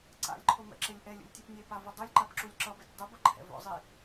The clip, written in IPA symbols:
ǀ a̰ lʲ ǃʰ o m ɛ̰ ǁ e lʲ ʔ ɛ lʲ ṵ lʲ tʲ ɯ p nʲ e p a v u dˤ o lʲ ǃ a p ǁ u lʲ ǁ ʌ b ɛ tʲ dˤ ɯ b ʌ ǃʰ ɛ̰ v o̰ zˤ i

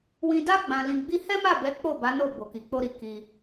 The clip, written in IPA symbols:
w ĩ˧ d a˦ ɡ͡b ã˧ l ĩ˧ ɡ͡b i˦ h ɛ˦ m a˦˨ b ɛ˨˦ k͡p o˦˨ b a˨˦ n o˦˨ b o˨ k i˨ k͡p o˧ ɾ i˨ k i˧

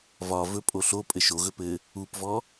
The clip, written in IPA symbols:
v ɒ v ɵ pʼ o ɬ o pʼ ɘ ʃ o ɣ ɵ p ɘ | u p v ɔ

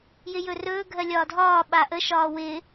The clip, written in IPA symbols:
j ɪ j ɵ r ɵː ɡʱ ɜ lʲ ɒː dʱ ɒː ɓ a ʔ ə ʃ ɒː w ɪ

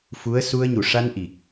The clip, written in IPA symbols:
f u˧˥ ə̯ s u˧ ə̯ ɲ u˨˩ ʂ a˧ n ʔ i˨˩ k̚

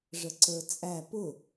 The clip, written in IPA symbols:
ʐ ə ǀ ə˞ t͡sʼ æ p ʊ

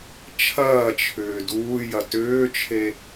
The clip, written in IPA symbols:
t͡ʃʰ ɐː t͡ʃʰ ʏː d uː j ɐ t ʏː t͡ʃʰ e

